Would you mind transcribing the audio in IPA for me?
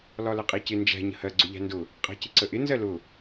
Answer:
l ɒ l ə qʼ i c ɪ n d͡ʒ æ̤ ɲ ə̤ h ɜ ɡ͡ǀ ʊ ʎ æ̤ n d ʊ | qʼ æ̤ c ɪ ǀ ə ʔ ɪ n z ɜ l ʊ

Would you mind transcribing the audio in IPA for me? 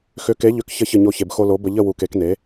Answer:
x ʏ˨˥ k e˨˥ ʎ ʏ˨˥ k ç ə˧ ç ə˥˨ ɲ o˥˨ ç e˧ b x o˧ l o˨˥ b ə˧ ʎ ə˥˨ w u˧ k e˨˥ k n e˨˥

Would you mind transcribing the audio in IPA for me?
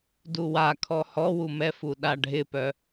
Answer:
d u w a kʰ ɔ h ɔ w u m ɛ f u ɗ a ɖʱ ɪ p œ

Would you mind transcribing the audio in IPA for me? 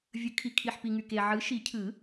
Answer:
vʲ ɯ˨˩˦ kʰ i˨ kʰ i˨ ħ p i˨ ŋ y˨ k e˨ ʕ ɯ˨˥ ʃ i˨˩˦ cʰ ɯ˨˩˦

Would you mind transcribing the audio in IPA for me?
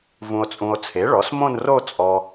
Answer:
v ũ˨ o̯ t͡sʼ ũ˨ o̯ t͡sʰ e˩˥ ɭ ɔ˩˥ s m õ˥˧ n r o˥˧ t͡sʼ ɔ˨

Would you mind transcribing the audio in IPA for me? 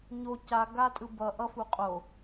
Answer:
ɲ o c a ɡ a tʼ ɯ b ʌ ʔ ʌ f u qʼ o

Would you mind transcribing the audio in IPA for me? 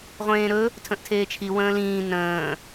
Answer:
ʁʷ ẽː ɾ ɵ | tʰ ə̃ ʔ tʰ eː t͡ʃʰ i w ə̃ː l ĩː n ə̃ː

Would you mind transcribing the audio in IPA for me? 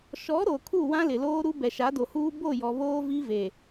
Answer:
ʃ ɔ˨˦ ɾ o˨ kʰ u˦˨ w ã˦ l ɪ˨ l oː˦ ɾ u˦ b ɛ˨ ʃ a˨˦ d o˨ h uː˦ b o˦˨ j ɔ˨ β oː˦ v i˦ v e˨

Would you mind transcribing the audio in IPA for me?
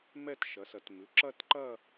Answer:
m ɛ˥˧ t ʃ ɐ˩˥ s ɐ˩˥ t m ʉ˩˧˩ ǁ ɐ˥˧ t ǃ ɐ˥˧

